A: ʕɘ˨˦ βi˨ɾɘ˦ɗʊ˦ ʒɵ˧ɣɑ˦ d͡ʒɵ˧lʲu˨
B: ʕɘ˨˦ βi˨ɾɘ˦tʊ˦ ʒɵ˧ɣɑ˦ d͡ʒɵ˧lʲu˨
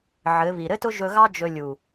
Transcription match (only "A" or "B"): B